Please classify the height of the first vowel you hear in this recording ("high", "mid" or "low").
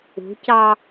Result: high